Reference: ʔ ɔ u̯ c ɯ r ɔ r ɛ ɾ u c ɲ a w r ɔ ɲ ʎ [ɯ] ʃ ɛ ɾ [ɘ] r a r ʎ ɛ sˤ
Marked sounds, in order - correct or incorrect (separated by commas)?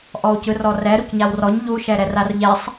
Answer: incorrect, incorrect